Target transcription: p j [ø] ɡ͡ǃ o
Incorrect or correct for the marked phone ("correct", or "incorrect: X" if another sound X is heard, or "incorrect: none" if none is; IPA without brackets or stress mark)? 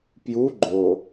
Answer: incorrect: u